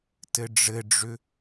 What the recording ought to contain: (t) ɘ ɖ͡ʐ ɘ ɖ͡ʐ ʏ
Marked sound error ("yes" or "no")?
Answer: no